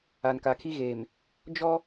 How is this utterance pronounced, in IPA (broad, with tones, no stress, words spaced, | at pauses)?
a˨nka˨kʰi˦ɣeː˨m | d͡ʒɔ˦